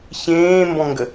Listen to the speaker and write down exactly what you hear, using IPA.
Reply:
ç ẽː m b ɔ̃ ŋ ɡ ə

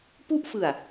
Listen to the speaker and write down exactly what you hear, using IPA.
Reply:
p u˥˩ ʔ f ɯ˨˩ a̯

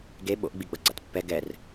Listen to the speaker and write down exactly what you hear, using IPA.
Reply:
ɡ e ɓ o̰ ʔ ɡ͡b i ɡ͡b ʌ ɡ͡ǀ a̰ t pː ɛ ɡ ɛ r

